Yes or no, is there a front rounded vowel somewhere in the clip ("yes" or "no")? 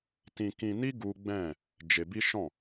no